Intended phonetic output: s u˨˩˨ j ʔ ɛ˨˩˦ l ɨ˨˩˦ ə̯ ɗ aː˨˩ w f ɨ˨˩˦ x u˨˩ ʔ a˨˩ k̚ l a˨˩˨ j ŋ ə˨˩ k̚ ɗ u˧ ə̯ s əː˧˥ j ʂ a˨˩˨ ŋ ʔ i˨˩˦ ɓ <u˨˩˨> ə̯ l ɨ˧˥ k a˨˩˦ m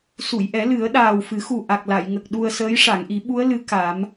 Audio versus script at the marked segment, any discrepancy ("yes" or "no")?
yes